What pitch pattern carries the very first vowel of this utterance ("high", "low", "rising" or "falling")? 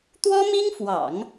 high